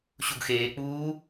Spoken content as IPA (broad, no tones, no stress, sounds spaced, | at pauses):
ɕ u ɡ x eː k͡p uː